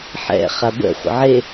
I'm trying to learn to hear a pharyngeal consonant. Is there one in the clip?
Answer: yes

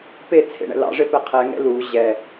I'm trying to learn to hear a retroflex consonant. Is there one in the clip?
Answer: yes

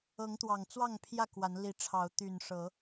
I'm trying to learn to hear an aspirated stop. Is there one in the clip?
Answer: yes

